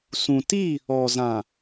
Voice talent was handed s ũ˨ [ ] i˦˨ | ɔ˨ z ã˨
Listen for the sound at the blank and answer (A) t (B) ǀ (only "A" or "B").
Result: A